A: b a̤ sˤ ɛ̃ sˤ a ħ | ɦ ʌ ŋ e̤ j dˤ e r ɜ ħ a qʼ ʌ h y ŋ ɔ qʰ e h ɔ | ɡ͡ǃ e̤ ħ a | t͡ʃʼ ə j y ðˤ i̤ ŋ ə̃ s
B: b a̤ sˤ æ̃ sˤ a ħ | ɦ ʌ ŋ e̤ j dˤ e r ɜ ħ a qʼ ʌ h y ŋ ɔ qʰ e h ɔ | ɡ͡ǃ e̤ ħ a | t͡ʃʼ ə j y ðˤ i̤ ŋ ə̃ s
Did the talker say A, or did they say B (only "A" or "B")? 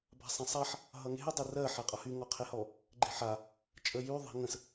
A